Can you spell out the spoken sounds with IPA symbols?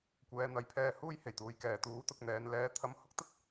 kʷ ɛː˨˧ n̪ ɐ˨˧ j pʰ ɛː˧ h uː˥ j h e˨˩ j t̪ uː˨ j k ɛː˨ t̪ uː˨˥ t̪ ʊ˨ k̚ n̪ ɛː˨˧ n l ɛː˨˧ t̪ʰ ɐ˧ m h ʊ˥ k̚ t̪ ɐ˥ t̚

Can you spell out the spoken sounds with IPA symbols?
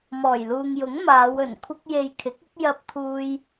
m ɔː˨˩ j l uː˨ ŋ j ʊ˨˥ ŋ m aː˨˧ w ɵ˨˩ n kʷʰ ɐ˥ k̚ j e˨ j kʰ ɪ˨˥ k̚ ɪ˨˥ k̚ j ɐ˥ p̚ t̪ʰ uː˥ j

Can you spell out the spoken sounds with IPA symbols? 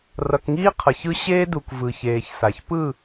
r ʌ˨ k ŋ iː˦ qʰ ʌ˨ ç ɯ˦ ɕ eː˦ d u˨ k v ɯ˨ ç eː˨ ç s a˨ ç p ɯ˦˨

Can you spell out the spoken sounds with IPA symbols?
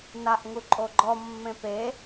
n a ʔ ŋ u ǃʼ o ɡ͡ǃ ɔ mː ẽ p e

